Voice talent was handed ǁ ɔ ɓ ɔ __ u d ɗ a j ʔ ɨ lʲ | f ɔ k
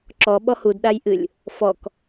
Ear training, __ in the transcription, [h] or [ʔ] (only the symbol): h